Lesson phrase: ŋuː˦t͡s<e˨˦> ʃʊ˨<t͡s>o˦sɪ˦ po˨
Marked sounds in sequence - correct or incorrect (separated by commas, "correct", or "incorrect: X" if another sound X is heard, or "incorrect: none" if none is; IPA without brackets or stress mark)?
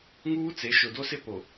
correct, incorrect: d